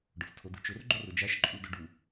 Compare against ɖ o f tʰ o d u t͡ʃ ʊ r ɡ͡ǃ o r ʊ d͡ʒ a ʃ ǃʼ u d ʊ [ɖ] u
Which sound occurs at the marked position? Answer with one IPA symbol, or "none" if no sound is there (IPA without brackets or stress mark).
ɖ